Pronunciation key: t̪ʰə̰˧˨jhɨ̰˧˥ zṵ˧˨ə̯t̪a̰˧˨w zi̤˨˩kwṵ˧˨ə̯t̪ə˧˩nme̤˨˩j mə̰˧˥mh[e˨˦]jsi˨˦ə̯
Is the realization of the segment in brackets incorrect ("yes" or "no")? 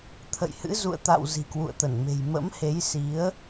no